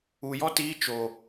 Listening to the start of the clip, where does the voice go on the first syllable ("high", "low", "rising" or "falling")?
low